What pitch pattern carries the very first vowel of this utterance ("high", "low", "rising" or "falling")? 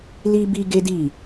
high